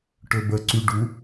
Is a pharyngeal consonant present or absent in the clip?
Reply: absent